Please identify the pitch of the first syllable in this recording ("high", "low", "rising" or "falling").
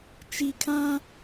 low